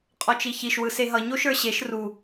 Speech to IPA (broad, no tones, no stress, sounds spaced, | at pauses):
qʼ ɔ t͡ʃ i ç i ʃ w ɯ s e ɦ ʌ ɲ o ʃ ə˞ ɕ e ʃ r u